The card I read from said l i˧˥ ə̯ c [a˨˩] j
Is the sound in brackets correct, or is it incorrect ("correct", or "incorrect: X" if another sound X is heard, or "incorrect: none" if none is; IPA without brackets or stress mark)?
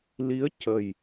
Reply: incorrect: ə˨˩